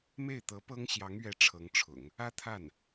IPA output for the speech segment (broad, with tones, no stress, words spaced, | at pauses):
me˥˩ɪ̯t̪ɤ˧˥pɤ˥ŋ ɕjɑ˧˥ŋɥɛ˧˥ ʈ͡ʂʰɤ˧˥ŋʈ͡ʂʰʊ̰˨˩˦ŋ | ä˥t̪ʰa˥˩n